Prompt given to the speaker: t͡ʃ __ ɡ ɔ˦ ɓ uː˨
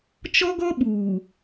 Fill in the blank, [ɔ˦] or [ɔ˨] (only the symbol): ɔ˦